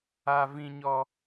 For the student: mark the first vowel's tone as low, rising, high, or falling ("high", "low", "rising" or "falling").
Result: high